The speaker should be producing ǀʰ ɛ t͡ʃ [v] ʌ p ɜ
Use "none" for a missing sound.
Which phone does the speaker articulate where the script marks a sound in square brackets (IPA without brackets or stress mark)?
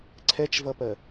v